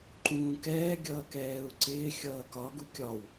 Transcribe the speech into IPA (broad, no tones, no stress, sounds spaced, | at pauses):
ǃ ũː k ɛː ɡʲ ʌː k ɛː u̯ ǀ ɪː xʲ ʌː k ɒ ɡ u kʲ ɒ w